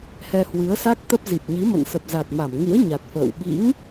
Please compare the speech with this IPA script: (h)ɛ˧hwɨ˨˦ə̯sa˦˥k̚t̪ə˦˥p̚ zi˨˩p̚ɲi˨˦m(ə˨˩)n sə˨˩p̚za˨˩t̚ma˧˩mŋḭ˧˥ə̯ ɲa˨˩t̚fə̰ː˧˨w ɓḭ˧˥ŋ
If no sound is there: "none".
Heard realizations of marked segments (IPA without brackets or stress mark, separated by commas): h, ə̰˧˨